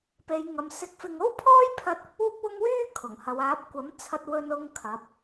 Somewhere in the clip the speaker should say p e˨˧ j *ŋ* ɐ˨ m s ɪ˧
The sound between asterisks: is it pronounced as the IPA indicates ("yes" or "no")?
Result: yes